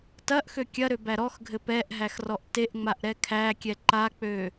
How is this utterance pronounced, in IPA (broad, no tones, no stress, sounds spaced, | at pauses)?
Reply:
t ɐ ʔ x ø kʲ ɐ ɾ ø b æ ɾ ɔ x ɡʱ ɘ p ɛ ʔ ɦ æ x r ɔ ʔ t e ʔ ŋ͡m a ʔ ɾ ɛ kʰ æ kʲ ɛ ǃ a k͡p ø